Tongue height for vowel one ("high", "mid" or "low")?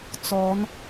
mid